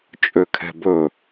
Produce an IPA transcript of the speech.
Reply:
t͡ʃʼøkʰɛ̤bɵ

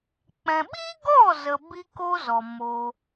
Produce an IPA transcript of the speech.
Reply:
k͡pɛ̃˧ ɓi˦ɡɔ˦˨ zə˧bi˦ko˦zɔ˨ mo˧

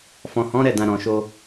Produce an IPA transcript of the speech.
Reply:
fɔ̃˨hɔ̃˨˦ɾɛ˦˨dã˨ ɾɔ̃˨ʃo˧

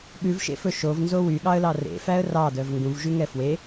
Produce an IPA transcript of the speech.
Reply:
ɠʉvʃḛfɵ ʃovnzo wyɠɑə̯lɑ rḛfæə̯ rɑdœv ŋɡũvʒyŋɛ fwe

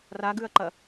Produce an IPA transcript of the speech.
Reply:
raɡʉɐ̯ǃɐ

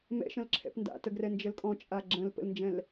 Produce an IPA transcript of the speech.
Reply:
mɛ̰ʃə̃lǁʰɛ̰p nda̰təɡrɛ nd͡ʒəlkʼɔ̃ t͡ʃʼaɡ͡ǁə̃l pə̰lnd͡ʒɛ̃l

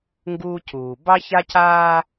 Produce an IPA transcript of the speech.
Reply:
ŋɡuː˦cuː˨ bɑ˦ça˦caː˦

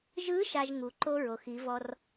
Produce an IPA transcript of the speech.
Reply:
ʒɯ˧˥ ʃa˧ʒ ŋu˩ ǃo˥ ɹo˩xi˩˧vɔ˧r

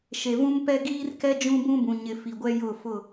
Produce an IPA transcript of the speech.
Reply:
ʃe˨vũ˦mpɛ˦ ɡiː˦rkɛ˦ d͡ʒũ˦bũ˦bũ˨ ɲɪ˨ fi˨ɡʷɛ˦ jʊ˦˨fʊ˦˨

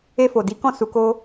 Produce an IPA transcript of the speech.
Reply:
e˧fo˨di˨˦kɔ̃˦˨ su˧ko˦

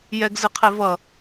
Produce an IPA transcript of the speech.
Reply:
jɛɡzɨqʰe vʌ

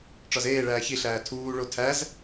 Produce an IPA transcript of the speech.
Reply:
ʈ͡ʂɒzeːɭæː çiɬæː tʰuːɭo tʰæz

